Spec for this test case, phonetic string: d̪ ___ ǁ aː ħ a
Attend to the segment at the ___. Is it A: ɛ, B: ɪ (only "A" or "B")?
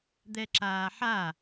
A